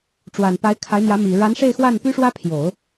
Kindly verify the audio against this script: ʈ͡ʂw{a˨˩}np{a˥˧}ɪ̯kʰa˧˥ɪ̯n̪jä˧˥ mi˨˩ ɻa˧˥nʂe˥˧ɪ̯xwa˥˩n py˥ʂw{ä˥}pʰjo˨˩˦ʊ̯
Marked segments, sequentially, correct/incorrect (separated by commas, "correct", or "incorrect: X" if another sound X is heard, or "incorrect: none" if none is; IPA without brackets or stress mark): correct, incorrect: a˧˥, correct